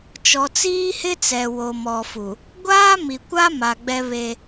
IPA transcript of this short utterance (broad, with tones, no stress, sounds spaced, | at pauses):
t͡ʃ ɔ˨ t͡s iː˦ h ɪ˦ t͡s ɛ˨ w o˨ m ɔ˨ f u˨ | ɡʷ aː˦ m i˨ kʷ a˦ m a˨ ɡ͡b ɛ˦ β e˦